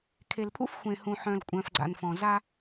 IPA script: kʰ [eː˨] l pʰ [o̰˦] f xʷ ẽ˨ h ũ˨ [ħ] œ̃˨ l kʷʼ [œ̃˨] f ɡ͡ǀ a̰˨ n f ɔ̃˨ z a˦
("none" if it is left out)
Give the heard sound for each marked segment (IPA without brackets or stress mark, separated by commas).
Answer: e˨, ṵ˦, ħ, œ̃˨